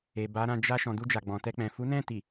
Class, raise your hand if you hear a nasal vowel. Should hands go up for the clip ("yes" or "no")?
yes